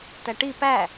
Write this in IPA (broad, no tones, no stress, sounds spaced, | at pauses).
t æ ʈ i p æ